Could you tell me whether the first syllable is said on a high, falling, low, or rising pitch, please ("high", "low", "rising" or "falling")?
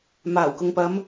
low